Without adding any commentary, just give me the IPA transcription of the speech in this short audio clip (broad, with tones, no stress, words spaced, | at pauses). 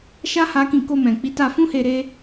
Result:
ʃa˦ ha˦kĩ˦˨ ko˧mɛ̃˨ k͡pi˨˦ta˧fũ˦he˧ ɾe˦